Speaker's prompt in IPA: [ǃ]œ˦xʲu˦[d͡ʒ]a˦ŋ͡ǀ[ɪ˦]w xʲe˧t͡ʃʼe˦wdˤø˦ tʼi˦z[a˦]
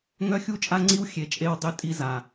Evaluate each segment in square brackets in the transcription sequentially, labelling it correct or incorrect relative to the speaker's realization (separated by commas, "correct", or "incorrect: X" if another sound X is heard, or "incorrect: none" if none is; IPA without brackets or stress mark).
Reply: incorrect: ŋ, incorrect: t͡ʃʼ, incorrect: i˦, incorrect: a˨